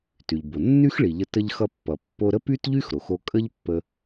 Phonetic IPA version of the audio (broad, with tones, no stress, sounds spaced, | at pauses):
t y˩ ʎ b o˩ nː y˥ x ɭ i˩ ʎ ə˧ t ə˧ ʎ x ʌ˧ pː ʌ˩ pː o˧ ɾ ə˥ p y˥ t ʎ y˥ x ɾ o˩ x o˧ kʼ ə˥ ʎ pː ə˧